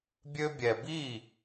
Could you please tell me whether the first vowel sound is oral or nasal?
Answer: oral